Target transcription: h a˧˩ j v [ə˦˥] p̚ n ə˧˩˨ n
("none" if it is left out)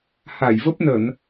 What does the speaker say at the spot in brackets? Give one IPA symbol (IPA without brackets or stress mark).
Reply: ə˦˥